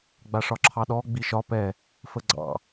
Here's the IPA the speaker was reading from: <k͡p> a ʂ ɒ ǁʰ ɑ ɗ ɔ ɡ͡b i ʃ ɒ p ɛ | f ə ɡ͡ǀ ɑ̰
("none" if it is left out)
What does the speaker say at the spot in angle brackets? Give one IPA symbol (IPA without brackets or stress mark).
ɡ͡b